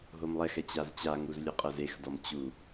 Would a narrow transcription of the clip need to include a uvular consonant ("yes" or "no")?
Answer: yes